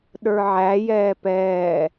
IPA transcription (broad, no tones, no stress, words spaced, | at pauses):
ɗə˞ʕæ jɛːpɛː